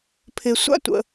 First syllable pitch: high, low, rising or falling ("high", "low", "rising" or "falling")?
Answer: low